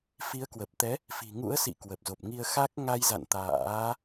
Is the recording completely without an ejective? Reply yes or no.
yes